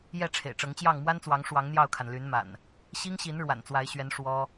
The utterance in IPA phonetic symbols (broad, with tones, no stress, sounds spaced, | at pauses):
j ɛ˥˨ ʈ͡ʂʰ ḛ˨˩ ɪ̯ ʈ͡ʂ ɤ˨˦ ŋ t͡ɕ j ɑ˥˨ ŋ m w a˦ n t͡s w ɑ˨˦ ŋ ʂ w ɑ˨˦ ŋ n̪ j ɑ˥˨ ʊ̯ kʰ a˩ n l y˨˦ n m a̰˨˩ n | ɕ i˦ ŋ ɕ i˨˦ n ɻ w a̰˨˩ n t͡s w a˨˦ ɪ̯ ɕ ɥ ɛ˨˦ n ʂ w ɔ˦